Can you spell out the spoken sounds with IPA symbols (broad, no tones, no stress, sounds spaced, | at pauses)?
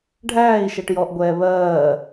ɖʱ æː i̯ ʃ ɛ ʈ j ɔ ʔ ɡʷ ɛː β ɜː